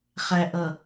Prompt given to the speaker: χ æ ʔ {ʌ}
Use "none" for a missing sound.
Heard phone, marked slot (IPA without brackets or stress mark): ʌ